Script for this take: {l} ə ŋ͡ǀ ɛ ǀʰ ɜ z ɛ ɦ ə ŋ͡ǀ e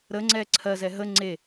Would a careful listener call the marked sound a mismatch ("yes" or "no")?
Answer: yes